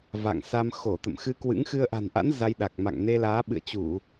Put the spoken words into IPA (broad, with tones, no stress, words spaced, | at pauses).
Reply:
va̰˧˨ŋsa˧m xo˧˩t̪ə̰˧˨mxɨ˧kwɨ̰˧˥ŋ xɨ˧ə̯ʔa̤˨˩nʔa̰˧˥n za˧jɗa˨˩k̚ma̰˧˨ŋ ne˧laː˨˦ɓɨ̰˧˨ə̯t͡ɕu˧˩˨